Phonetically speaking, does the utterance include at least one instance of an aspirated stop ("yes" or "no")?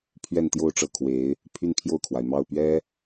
yes